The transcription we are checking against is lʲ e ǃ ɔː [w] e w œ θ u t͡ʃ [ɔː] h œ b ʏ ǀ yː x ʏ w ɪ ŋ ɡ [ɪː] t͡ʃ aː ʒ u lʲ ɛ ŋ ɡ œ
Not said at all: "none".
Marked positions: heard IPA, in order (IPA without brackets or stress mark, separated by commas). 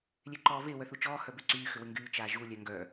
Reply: v, ɔː, yː